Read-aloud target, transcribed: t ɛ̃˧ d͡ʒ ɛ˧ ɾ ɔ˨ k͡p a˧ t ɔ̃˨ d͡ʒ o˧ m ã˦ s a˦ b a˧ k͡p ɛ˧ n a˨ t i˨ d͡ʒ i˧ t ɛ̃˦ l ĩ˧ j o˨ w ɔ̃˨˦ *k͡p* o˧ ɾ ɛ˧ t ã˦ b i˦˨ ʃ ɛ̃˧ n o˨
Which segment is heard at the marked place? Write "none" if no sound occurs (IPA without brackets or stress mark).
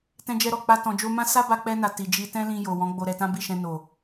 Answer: ɡ͡b